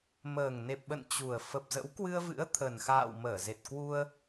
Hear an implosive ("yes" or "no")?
yes